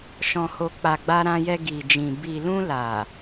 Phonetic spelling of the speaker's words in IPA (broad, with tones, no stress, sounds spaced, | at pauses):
ʃ ɔ̃˨ h o˨ k͡p a˨ ɡ͡b a˧ ɾ ã˧ j ɛ˧ ɡ i˨ d͡ʒ ĩ˨ b i˨ l ũ˧ l a˨